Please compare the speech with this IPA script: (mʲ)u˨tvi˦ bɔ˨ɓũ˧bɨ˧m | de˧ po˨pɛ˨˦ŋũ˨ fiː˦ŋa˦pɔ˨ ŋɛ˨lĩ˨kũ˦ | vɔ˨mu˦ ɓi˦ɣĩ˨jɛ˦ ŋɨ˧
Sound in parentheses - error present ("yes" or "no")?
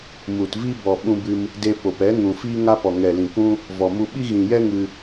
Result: yes